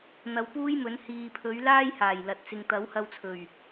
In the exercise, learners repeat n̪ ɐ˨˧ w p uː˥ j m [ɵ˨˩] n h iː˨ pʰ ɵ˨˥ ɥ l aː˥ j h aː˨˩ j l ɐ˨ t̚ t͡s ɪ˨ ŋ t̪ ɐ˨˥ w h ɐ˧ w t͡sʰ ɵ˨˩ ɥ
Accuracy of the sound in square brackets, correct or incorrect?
incorrect